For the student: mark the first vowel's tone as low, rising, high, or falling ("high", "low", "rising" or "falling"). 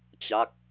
falling